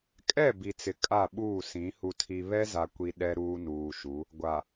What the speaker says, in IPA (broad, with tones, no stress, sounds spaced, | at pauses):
kʼ ɛ˦˨ b i˨ t͡s ɪ˨ kʼ a˦˨ ɓ uː˦˨ s ĩ˨˦ h u˨ tʰ i˨ β ɛ˦ z a˨ kʷ i˨ ɗ ɛ˦ ɾ uː˦ n uː˨ ʃ u˨˦ | ɡʷ a˨